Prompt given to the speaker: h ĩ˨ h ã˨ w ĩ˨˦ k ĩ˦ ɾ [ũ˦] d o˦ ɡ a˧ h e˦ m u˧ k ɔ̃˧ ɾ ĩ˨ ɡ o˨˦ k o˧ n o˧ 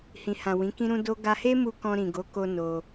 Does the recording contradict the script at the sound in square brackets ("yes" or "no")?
no